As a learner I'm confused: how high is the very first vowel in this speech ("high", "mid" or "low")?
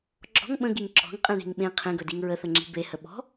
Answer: mid